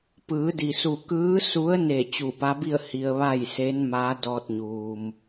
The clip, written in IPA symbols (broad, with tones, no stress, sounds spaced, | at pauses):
p ɯː˩˧ d i˩ s u˧˩ k ɯː˧˥ s u˧˥ ə̯ n e˧˩ t͡ɕ u˧˩ p a˧˥ b i˥˨ ə̯ h i˧ ə̯ ʋ a˥˨ j s e˧˥ n m aː˧˥ d ɔː˧ t̚ ɲ uː˩ m